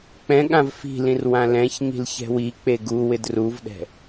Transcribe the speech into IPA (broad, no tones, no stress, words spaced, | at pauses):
k͡pɛ̃ ɠãvfi̤lĩr wãlɛ̃çɲi̤l çɛ̤wik͡pe ɡu wɪdruvɗɛ̤